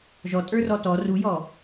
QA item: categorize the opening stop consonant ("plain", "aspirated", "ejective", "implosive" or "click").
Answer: ejective